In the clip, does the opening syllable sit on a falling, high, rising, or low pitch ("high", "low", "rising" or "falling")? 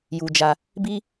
high